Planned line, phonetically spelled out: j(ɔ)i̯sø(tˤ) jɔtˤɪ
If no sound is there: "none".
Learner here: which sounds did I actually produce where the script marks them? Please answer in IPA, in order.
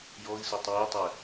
ɔ, tˤ

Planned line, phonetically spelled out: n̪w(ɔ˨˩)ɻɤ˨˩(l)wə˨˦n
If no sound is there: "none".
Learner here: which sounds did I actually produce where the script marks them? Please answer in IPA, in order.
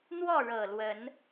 ɔ˥˨, l

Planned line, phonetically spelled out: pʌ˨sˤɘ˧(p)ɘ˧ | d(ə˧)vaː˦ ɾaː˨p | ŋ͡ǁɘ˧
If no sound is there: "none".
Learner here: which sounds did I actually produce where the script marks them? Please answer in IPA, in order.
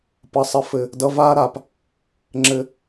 f, ʌ˧

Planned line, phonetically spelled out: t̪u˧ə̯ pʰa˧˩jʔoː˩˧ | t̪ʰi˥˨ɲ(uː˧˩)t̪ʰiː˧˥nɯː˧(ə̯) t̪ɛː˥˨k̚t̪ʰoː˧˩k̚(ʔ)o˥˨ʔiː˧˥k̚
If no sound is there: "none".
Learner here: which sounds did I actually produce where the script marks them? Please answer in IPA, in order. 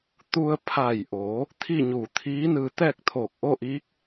uː˧˩, none, ʔ

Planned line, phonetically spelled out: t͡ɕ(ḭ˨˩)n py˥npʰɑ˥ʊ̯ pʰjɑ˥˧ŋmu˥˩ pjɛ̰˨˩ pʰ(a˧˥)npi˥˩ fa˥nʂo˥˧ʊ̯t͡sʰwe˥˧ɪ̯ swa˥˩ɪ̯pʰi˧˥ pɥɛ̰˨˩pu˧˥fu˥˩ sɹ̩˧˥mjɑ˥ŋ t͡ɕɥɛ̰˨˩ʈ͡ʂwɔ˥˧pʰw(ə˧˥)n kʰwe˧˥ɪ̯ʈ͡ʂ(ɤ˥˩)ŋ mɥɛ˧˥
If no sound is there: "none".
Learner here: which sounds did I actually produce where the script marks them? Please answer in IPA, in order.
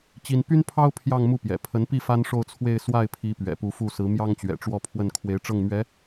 i˥, ə˧˥, ə˥˩, ɤ˥˩

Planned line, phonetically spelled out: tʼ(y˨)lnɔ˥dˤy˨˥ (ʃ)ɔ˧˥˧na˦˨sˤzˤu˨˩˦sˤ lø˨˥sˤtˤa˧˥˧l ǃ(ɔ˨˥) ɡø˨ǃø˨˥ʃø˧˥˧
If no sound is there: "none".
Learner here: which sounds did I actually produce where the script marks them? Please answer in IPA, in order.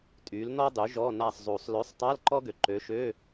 y˨˥, ʒ, ɔ˥

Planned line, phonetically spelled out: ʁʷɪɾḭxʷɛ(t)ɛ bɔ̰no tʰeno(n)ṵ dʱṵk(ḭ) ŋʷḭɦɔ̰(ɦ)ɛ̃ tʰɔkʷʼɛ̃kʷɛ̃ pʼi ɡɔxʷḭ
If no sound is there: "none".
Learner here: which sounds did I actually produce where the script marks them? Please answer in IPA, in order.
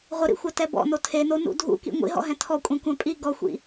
t, n, ḭ, ɦ

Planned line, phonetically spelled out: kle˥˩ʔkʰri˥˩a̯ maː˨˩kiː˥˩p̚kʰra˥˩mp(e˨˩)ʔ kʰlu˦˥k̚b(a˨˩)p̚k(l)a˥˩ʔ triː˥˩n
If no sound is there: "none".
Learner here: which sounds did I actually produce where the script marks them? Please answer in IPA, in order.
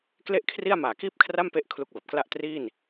e˦˥, a˨˩, l

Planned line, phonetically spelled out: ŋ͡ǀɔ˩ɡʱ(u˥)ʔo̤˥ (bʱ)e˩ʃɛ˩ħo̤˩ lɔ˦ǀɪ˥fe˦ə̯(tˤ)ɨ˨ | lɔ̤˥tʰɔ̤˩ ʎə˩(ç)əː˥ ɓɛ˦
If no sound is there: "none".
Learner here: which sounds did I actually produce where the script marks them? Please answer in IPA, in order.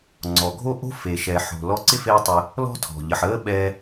o˥, f, tˤ, ħ

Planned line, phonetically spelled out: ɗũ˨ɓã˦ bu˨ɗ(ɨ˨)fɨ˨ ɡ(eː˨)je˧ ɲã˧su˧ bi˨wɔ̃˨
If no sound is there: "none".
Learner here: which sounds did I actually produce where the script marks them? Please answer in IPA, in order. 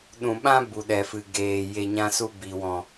ɛ˨, eː˨

